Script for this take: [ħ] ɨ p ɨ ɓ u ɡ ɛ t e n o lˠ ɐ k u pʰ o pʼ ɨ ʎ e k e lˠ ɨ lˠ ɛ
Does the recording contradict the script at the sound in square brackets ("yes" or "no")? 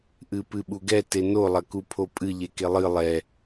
yes